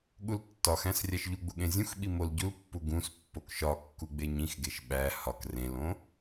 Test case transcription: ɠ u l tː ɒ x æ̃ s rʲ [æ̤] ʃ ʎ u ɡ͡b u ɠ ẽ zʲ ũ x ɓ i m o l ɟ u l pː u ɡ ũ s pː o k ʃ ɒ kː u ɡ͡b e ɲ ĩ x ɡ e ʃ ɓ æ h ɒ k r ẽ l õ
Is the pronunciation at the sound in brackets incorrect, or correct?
incorrect: æ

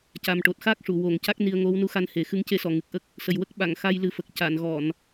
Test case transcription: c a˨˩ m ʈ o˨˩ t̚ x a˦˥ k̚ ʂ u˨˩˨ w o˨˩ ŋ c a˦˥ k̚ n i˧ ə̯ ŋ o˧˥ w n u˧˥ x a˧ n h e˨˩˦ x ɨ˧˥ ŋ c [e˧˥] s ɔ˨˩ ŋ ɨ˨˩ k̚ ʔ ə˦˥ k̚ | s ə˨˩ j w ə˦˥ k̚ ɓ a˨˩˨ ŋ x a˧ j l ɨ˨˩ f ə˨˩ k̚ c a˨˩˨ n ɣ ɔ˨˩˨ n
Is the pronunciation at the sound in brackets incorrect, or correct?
correct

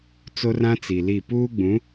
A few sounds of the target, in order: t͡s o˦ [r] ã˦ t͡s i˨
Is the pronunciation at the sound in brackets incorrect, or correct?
correct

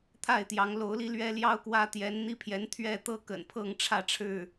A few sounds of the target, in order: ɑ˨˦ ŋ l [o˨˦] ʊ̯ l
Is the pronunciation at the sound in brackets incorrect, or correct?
correct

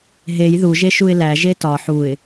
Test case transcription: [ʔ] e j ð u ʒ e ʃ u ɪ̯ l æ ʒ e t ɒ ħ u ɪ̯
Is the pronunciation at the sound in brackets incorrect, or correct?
incorrect: ɦ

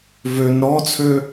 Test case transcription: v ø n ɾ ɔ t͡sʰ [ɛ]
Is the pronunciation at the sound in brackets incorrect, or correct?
incorrect: ø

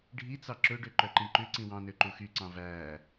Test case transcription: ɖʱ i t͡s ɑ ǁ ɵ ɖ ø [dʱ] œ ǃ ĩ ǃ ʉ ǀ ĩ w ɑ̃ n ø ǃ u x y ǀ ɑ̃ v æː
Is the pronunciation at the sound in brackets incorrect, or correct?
incorrect: ǃ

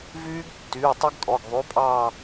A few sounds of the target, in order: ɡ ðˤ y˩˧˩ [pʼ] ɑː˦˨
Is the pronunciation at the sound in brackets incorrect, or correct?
correct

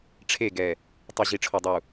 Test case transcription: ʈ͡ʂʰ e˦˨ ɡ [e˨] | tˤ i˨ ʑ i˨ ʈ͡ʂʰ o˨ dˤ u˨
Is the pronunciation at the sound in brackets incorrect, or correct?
incorrect: ɛ˨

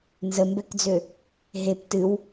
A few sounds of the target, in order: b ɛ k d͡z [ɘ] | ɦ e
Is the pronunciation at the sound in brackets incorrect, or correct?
incorrect: ø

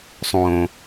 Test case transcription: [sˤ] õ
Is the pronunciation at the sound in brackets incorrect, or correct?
correct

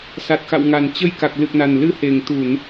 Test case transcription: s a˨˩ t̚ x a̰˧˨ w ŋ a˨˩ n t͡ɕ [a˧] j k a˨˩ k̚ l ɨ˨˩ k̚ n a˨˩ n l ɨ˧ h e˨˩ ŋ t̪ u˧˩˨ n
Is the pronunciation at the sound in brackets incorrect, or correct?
incorrect: ə˧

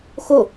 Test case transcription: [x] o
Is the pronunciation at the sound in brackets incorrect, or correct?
correct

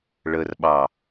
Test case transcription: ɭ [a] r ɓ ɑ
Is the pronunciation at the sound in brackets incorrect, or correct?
incorrect: ə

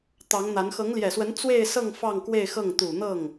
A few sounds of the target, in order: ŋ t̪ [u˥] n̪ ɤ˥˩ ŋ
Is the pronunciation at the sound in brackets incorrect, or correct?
incorrect: u˨˩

